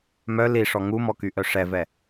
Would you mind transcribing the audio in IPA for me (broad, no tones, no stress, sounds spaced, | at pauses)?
m œ l i ʂ ɔ ŋ u m ɔ k y ʔ œ ʂ ɛ v ɛ